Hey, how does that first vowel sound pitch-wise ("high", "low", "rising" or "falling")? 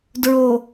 low